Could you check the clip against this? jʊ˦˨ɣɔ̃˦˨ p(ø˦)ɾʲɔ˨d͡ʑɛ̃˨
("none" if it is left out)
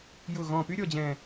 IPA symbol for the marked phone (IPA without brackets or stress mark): y˦